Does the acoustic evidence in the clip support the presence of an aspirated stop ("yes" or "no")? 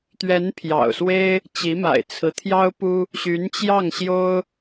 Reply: yes